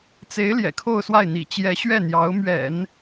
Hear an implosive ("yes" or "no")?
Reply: no